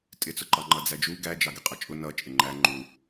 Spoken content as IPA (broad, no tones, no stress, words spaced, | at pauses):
tʼɪt͡sʊ ǃɑŋ͡ǃʌd͡zæd͡ʒu ɡæd͡ʒɑɡɪ qʼʌt͡ʃʼʊ nʌ t͡ʃʼɪŋ͡ǃæ ŋ͡ǃu